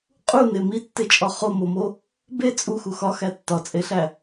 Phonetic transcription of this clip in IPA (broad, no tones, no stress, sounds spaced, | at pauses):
qʼ u n e m i tː e t͡ʃʼ ɒ χ o m o m o | b e t͡sʼ u x u x ɒ x æ tː ɒ t͡sʼ e ɬ æ